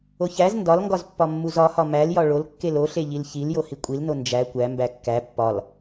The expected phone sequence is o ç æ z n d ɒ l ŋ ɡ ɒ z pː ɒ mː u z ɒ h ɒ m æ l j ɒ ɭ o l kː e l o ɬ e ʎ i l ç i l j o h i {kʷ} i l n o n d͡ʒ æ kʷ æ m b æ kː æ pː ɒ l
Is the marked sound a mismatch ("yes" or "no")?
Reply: yes